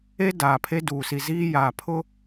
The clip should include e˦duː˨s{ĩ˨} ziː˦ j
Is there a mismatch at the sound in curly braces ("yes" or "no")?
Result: yes